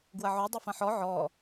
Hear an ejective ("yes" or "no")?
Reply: no